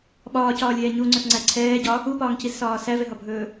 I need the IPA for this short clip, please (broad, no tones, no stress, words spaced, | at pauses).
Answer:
ɓɒːcɒːlʲɛː ɲuŋ͡ǀɵsŋ͡ǀæ ǀʰɛːɟɒ | upɒːŋcizsɒː sævɛɦɒbʱɵː